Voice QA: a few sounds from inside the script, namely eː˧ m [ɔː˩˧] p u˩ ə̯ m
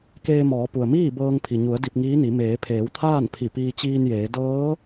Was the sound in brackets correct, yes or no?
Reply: yes